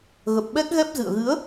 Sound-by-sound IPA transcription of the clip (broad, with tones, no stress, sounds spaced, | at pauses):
ɣ ə˨˩ p̚ ɓ ɛ˦˥ k̚ ɣ ɛ˦˥ p̚ z ɨ̰˧˨ ə̯ ɣ ɨ˨˦ ə̯